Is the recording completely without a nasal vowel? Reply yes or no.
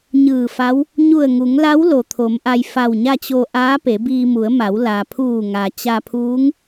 yes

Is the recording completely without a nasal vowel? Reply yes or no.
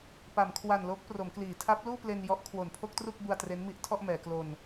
yes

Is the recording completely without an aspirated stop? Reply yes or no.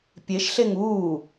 yes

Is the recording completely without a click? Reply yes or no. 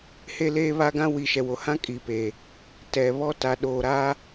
yes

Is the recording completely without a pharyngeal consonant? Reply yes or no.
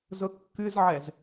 no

